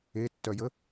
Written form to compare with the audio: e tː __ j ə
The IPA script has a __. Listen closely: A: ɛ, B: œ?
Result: B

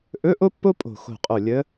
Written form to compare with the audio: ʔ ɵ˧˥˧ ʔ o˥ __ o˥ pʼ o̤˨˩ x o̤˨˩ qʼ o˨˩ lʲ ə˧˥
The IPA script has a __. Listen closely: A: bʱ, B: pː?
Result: B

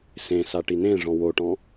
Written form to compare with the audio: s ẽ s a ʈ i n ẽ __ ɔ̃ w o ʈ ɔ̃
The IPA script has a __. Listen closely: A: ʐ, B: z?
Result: A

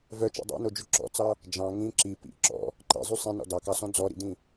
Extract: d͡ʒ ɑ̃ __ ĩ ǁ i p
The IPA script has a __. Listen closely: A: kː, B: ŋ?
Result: B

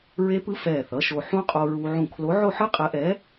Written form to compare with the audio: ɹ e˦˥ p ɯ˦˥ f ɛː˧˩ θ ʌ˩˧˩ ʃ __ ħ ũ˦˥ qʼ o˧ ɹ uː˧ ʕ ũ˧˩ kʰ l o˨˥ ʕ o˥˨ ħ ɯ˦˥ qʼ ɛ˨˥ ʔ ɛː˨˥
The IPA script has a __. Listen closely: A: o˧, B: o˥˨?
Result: A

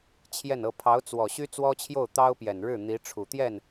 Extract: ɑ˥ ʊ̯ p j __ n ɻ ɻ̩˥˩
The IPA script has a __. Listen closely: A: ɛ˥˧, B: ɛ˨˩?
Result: B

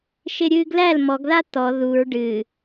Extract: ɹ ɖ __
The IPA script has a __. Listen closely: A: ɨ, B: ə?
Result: A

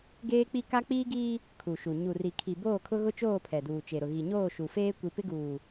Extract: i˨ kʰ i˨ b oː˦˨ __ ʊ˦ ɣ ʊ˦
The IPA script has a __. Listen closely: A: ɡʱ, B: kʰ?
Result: B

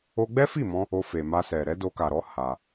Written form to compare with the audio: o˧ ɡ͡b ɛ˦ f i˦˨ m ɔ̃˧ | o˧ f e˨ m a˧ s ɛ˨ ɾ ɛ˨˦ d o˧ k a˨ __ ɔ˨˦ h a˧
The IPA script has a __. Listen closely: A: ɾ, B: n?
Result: A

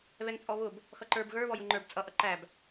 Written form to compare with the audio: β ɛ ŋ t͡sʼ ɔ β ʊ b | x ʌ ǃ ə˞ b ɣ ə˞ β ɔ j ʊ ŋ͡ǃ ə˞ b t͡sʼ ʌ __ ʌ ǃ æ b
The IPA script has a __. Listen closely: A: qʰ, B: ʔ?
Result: B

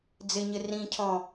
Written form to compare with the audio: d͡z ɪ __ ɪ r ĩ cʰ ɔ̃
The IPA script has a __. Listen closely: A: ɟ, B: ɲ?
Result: B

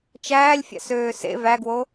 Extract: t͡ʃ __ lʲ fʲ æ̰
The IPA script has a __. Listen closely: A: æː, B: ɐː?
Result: A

